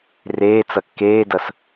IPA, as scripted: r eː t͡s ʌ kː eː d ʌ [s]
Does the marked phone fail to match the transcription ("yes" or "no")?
no